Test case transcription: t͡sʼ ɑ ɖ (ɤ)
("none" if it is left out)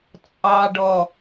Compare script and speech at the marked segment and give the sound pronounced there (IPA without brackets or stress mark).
ɔ